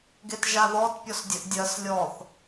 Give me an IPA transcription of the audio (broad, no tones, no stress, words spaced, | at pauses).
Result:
ɡetʒaðɔt pʲɔsdʲəʔdʲɜs lʲɔθ